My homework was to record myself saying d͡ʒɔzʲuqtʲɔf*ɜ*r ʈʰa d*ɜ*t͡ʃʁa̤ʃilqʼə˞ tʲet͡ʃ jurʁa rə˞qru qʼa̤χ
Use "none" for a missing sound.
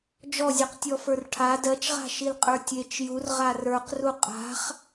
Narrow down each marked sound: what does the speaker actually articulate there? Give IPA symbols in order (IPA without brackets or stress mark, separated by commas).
ə˞, ɜ